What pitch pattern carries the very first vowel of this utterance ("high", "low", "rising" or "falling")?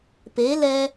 rising